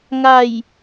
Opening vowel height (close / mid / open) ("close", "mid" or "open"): open